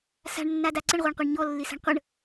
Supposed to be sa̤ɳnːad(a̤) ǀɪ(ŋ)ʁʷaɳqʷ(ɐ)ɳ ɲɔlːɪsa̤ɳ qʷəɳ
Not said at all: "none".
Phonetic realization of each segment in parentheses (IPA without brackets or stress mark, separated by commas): a, ɳ, a